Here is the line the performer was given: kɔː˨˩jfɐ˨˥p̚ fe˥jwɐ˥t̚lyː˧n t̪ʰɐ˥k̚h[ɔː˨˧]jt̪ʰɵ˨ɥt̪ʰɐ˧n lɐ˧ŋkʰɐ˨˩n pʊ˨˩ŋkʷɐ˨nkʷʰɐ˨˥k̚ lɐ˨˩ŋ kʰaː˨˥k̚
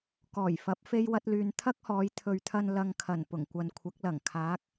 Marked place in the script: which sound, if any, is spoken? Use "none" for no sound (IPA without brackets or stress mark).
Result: ɔː˨˧